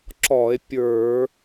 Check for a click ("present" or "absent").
present